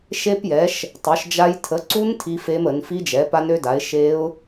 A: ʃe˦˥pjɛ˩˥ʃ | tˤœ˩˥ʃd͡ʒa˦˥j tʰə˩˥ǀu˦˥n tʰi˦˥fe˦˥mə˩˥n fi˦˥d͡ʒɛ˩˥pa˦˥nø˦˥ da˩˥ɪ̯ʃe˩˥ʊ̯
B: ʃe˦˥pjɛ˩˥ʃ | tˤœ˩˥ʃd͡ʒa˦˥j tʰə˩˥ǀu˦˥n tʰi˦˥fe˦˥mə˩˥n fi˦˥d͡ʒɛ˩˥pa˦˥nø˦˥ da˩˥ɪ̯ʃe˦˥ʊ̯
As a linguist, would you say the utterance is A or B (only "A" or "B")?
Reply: B